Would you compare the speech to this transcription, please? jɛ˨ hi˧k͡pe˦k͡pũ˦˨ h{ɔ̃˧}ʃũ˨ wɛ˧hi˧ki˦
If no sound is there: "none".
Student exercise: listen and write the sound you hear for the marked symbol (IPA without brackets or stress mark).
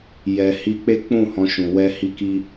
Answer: ɔ̃˧